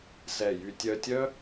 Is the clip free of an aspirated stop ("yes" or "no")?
yes